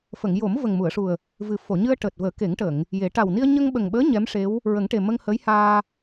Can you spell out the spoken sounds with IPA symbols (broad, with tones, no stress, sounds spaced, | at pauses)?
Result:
f ə˨˩˨ ŋ j o˨˩˦ m v ə˨˩ ŋ m u˨˩˨ ə̯ ʂ u˨˩ ə̯ | v ɨ˨˩ f o˨˩˨ ɲ ɨ˧ ə̯ ʈ əː˨˩ t̚ v əː˨˩˦ k e˨˩˦ ŋ ʈ ə˨˩˨ ŋ | j e˨˩˦ ʈ a˨˩ w n i˧ ə̯ ɲ ə˧ ŋ ɓ ə˨˩ ŋ ɓ əː˧˥ ɲ ɛ˧˥ m ʂ e˧˥ w | ɹ ə˨˩˦ ŋ ʈ e˨˩ m ə˧ ŋ h əː˧˥ j h aː˧